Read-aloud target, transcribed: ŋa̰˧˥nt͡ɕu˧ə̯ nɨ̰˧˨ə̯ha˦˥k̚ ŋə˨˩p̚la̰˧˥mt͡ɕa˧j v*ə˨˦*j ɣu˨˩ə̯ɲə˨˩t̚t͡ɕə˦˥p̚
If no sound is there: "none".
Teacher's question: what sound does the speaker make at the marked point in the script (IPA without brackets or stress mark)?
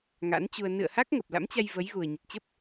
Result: ə˨˦